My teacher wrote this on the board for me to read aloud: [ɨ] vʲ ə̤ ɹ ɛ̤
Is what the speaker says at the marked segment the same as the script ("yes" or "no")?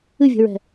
yes